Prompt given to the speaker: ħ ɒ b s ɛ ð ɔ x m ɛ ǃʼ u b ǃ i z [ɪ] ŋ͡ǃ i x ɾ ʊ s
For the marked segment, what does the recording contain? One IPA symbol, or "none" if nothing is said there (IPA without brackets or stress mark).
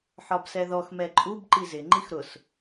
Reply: ɪ